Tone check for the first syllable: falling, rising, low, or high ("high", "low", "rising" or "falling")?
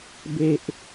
high